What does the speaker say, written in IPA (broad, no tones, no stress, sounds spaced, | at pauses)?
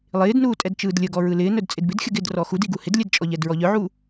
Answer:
lˠ ɪː d n uː tʼ ɛ d t͡ʃ ɯː d lʲ ə ɡ ɔ ɹ ɯ l ɪː n œ d t͡sʼ ɪ d b ɪ d xʲ ə ɡ ɪ d r ɔ x u d i ɡ u h ɪ d lʲ ɛ d t͡ʃʼ ɔ ʎ ɛ d ɹ ɔ ʎ œ ʕ u